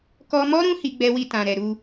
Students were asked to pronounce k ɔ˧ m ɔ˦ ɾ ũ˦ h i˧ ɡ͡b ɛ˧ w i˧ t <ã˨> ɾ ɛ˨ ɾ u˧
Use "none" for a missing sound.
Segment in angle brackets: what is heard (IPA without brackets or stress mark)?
ã˨